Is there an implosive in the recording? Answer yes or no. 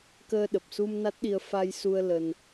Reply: yes